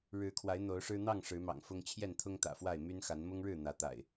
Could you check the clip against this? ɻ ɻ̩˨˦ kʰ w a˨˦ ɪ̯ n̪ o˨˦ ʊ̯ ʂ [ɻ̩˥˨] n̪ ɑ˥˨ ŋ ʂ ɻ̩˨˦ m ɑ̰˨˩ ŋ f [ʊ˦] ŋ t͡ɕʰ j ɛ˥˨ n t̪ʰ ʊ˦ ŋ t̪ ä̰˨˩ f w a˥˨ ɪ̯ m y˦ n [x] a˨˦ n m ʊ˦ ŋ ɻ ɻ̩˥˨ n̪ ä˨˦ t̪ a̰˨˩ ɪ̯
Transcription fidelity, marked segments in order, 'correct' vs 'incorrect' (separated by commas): incorrect, correct, correct